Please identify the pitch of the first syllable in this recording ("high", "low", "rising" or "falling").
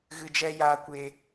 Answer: low